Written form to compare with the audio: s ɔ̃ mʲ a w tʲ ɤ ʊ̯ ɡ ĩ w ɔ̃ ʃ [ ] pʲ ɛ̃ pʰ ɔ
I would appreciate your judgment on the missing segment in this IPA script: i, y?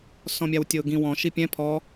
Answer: i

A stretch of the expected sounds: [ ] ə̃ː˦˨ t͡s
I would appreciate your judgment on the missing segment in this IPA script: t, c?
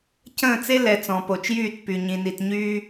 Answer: c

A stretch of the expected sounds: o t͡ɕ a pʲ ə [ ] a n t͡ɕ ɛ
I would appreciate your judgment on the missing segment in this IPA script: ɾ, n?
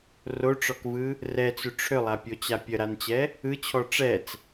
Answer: ɾ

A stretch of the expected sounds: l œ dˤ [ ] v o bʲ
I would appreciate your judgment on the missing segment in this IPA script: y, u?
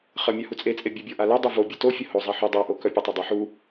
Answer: u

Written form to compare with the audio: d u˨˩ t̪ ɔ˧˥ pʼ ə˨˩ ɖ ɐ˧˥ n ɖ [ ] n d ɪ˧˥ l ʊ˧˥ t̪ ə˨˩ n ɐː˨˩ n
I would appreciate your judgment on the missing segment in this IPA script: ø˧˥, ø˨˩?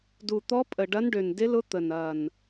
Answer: ø˨˩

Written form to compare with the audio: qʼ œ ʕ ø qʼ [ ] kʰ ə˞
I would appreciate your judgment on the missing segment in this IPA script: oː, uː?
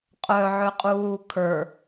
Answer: uː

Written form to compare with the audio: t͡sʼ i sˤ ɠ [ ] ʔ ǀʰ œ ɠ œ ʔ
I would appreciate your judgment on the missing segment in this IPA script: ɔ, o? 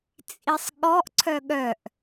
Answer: ɔ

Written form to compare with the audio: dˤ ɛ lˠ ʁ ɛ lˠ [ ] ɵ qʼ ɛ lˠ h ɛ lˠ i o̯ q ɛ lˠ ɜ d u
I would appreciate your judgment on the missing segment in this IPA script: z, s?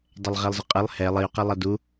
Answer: z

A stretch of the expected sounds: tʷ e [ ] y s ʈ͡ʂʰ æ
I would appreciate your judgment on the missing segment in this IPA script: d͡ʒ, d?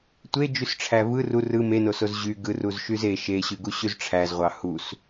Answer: d͡ʒ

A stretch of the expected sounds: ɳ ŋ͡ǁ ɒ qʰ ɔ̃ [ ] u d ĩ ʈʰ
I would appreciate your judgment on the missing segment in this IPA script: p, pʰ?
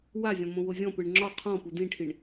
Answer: p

